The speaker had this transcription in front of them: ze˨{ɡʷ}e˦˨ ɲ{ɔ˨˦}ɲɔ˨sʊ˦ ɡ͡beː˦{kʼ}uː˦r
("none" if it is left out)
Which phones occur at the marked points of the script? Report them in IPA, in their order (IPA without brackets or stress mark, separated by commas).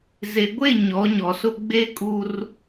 ɡʷ, ɔ˨˦, kʼ